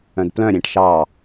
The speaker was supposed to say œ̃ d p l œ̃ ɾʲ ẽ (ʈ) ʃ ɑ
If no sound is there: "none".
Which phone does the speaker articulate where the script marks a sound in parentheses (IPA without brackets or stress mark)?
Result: ʈ